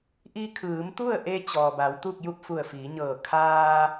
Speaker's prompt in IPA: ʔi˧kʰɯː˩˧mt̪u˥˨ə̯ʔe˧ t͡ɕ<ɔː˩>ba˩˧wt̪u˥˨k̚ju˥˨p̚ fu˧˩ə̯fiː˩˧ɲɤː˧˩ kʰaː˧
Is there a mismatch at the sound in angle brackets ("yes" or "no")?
no